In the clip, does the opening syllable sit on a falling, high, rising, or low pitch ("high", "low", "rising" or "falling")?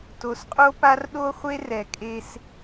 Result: low